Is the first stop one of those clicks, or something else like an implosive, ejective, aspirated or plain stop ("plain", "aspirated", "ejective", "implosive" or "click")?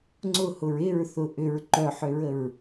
click